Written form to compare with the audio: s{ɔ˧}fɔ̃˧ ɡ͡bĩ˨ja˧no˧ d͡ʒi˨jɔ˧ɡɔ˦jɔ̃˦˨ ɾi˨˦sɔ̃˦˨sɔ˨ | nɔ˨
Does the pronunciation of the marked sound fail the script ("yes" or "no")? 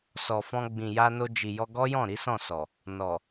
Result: yes